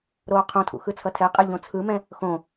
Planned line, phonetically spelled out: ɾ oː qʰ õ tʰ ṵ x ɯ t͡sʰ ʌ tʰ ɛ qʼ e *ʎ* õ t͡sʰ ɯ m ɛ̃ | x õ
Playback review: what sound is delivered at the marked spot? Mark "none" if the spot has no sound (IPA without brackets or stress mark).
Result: ʎ